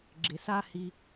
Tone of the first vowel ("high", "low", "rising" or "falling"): low